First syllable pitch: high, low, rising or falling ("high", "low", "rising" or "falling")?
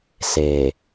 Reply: low